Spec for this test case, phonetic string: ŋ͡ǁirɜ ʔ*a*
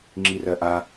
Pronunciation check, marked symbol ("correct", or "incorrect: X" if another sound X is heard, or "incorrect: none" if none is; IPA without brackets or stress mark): correct